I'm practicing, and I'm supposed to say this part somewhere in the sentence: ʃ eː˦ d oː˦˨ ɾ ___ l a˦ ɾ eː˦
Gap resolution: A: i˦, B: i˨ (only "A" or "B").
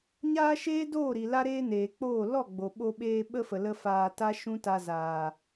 B